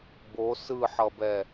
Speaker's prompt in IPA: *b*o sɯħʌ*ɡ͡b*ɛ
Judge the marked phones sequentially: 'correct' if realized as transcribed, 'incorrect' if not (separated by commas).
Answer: correct, incorrect